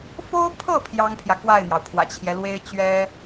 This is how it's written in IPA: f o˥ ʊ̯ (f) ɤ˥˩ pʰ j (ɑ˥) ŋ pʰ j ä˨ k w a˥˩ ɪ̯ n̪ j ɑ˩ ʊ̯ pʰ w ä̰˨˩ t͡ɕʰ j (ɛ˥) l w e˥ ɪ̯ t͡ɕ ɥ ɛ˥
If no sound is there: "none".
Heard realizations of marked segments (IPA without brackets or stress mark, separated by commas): pʰ, ɑ˥, ɛ˦